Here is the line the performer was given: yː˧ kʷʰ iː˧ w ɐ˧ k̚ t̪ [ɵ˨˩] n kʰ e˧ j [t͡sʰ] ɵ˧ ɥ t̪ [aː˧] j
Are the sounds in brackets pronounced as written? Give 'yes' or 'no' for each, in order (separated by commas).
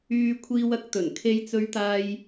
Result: yes, no, yes